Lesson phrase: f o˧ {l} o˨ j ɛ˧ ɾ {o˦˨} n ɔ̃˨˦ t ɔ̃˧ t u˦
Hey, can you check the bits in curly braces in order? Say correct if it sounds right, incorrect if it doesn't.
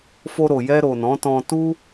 incorrect: ɾ, incorrect: o˨

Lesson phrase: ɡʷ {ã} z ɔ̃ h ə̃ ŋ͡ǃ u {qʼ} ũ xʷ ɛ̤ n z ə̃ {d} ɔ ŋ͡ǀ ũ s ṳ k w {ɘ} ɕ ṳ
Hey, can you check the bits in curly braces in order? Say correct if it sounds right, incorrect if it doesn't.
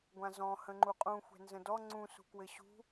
correct, correct, correct, correct

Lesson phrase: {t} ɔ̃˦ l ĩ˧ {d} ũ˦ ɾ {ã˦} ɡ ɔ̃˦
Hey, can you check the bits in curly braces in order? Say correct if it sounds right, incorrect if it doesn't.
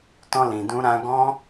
correct, correct, correct

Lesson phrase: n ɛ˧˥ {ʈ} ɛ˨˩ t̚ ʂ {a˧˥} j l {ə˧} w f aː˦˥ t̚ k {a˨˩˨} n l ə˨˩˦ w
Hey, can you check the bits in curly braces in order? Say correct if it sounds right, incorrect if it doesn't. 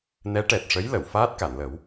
correct, incorrect: ə˧˥, incorrect: ə˨˩˨, correct

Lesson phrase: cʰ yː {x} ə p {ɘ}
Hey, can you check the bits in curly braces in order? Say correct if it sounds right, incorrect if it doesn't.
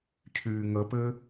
incorrect: ŋ, correct

